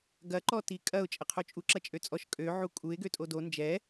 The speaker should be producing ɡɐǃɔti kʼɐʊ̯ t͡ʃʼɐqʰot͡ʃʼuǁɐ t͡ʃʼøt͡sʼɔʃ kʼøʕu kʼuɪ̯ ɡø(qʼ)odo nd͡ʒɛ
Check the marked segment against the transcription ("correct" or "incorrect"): incorrect